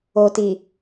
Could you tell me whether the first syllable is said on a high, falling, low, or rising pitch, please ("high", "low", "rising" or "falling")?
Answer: low